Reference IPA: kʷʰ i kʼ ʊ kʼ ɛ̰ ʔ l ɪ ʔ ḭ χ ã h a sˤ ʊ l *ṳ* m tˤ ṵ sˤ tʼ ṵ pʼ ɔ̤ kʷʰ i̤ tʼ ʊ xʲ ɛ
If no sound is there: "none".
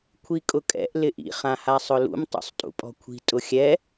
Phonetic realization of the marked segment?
ṵ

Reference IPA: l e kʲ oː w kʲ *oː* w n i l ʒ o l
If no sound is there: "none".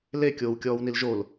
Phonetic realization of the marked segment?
ɔː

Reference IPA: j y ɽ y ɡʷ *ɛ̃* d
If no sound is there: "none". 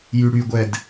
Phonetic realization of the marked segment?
ɛ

